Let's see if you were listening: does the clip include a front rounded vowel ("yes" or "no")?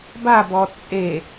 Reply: no